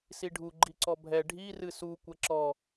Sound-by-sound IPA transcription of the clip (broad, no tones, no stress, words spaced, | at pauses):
siɖʱu ɡ͡ǃiǀɔbʱɛ ɖʱi rɨsu kʷɛǁɔ